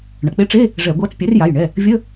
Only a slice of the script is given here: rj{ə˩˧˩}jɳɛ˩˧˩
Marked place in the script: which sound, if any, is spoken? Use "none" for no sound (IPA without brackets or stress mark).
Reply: a˩˧˩